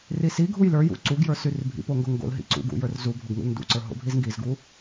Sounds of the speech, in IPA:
risiɡʱuj lə˞jṵ ǀuɡjə˞ syrbʱḭpo ŋɡoŋɡo̰lɦḭ ǀṵɡṵ jə˞rzubʱoɡ ŋṵlndṵǀə˞ ɦo̰bʱizŋɡizɡu

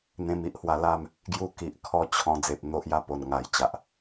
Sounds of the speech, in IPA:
n̪ẽ˧mi˦ʔhwa˧la˥˧m | ɡju˧ki˨ʔkʰɔ˧ t͡ɕʰɔ̃˧ d͡ze˨p̚ n̪o˦ʔja˥˧po˨˩n ŋa˨˩jt͡ɕa˨ʔ

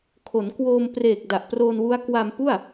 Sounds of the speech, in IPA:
kʰo˩˦nkwoː˧m preː˨˩k̚da˨˩ʔproː˧nwu˦˥a̯ kwa˧mpu˥˩a̯

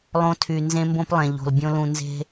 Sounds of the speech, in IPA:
lˠõ˧tʰy˨ nzẽ˦mbõ˦plˠẽ˨ʎo̤˨l bʲõ˦lũ˧ nze̤˦

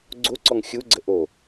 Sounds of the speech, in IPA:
ɡ͡ǀo ǀɔŋxʲuɡ͡ǀə ʔo

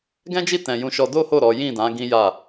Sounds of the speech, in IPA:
ɡɛ̃˦d͡ʒi˦˨tɛ̃˨ jũ˧ʃɔ˧ do˦ho˦˨ ɾɔ˨˦ jĩ˦˨dã˨˦ ɡĩ˦ja˦˨

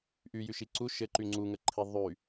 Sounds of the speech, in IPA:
ʔyjyʃi ǀu ʃɘǃy ŋ͡ǀuŋəǃʰi ðˤy

